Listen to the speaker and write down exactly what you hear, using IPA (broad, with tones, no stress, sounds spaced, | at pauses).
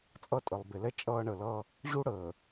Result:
t͡sʼ ʌ˦ tʼ ə˨ lˠ b e˨ l ɛ˦ t͡ʃʼ ʌː˦ ɳ ə˨ l ʌ˦ | ʑ u˦ ɽ əː˨